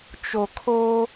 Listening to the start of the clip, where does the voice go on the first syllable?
low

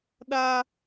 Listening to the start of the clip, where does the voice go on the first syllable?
high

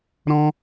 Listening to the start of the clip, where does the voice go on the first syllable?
high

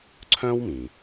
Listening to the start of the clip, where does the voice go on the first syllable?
high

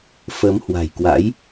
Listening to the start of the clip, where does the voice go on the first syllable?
rising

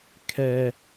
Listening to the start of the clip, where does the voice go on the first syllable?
high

